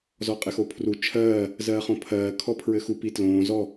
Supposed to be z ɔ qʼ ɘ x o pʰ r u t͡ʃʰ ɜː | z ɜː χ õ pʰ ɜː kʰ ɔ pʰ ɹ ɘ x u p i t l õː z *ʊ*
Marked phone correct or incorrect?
incorrect